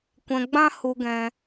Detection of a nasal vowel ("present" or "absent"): present